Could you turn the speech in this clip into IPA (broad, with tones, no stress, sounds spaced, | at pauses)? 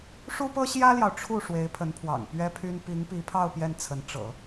ʂ u˥ p ɤ˥ ɕ j ä˥ l j ɑ˨ ʊ̯ ʈ͡ʂʰ u˥˩ ʂ w e˧˥ ɪ̯ pʰ ə˧˥ n pʰ w ɑ̰˨˩ ŋ p ɥ ɛ˥ pʰ y˥ n p i˧˥ ŋ p i˧˥ pʰ ɑ˥˧ ʊ̯ p j ɛ˥˩ n t͡sʰ ə˧˥ n ʈ͡ʂ ɤ̰˨˩˦